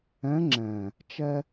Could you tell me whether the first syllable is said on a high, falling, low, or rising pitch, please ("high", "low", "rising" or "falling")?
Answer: rising